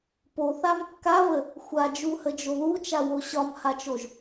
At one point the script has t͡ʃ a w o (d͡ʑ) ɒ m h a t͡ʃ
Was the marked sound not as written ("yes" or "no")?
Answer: yes